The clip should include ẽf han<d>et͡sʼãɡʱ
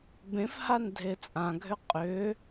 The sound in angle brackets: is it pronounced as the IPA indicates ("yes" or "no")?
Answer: no